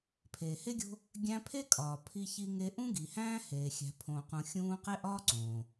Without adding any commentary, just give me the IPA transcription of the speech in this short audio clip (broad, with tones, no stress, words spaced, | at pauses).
pʰeː˨he˥ɡʲo̤˦ | ɡʲæ̃˦pʰe˥kʼɒː˨ pʰi˦çi˦ŋe˦ ʔũ˥ɡi˨ hæ̃ː˥heː˨ xʲæ̤˨pʰõː˨qũ˨ xʲũː˦ qe˥ʔɒː˥ǀõː˩